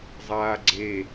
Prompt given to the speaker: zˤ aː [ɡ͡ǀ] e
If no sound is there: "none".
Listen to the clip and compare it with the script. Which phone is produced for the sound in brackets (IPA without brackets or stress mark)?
ɡ͡ǀ